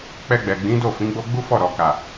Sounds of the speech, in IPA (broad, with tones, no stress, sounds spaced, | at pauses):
k͡p ɛ˧ ɡ͡b ɛ˨ ɡ͡b ĩ˨˦ d o˦˨ f ĩ˨˦ ɡ͡b o˦ ɡ͡b u˦ f ɔ˦˨ ɾ ɔ˨ k a˨